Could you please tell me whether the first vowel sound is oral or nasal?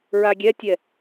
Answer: oral